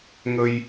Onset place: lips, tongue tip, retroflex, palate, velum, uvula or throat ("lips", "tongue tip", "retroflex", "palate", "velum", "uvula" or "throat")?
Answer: velum